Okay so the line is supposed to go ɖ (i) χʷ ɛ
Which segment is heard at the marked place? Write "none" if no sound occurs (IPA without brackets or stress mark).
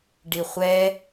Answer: i